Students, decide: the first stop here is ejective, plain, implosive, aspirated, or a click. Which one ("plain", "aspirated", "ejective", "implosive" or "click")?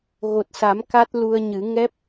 plain